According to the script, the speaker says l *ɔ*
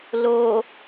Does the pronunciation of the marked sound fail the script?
yes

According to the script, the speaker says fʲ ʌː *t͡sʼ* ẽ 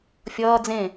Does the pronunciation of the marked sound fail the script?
yes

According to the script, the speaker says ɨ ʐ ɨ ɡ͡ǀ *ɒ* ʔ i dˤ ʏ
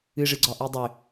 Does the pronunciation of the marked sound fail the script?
no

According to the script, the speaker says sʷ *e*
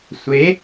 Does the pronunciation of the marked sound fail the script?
no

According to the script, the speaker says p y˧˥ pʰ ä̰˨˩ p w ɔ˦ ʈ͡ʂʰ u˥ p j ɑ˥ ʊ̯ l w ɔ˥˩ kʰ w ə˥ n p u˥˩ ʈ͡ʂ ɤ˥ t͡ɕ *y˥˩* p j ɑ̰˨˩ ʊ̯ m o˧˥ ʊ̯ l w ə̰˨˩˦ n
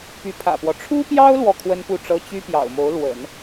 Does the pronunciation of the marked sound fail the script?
yes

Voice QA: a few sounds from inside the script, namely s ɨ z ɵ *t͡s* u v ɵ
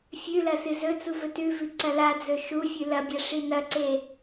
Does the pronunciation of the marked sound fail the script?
no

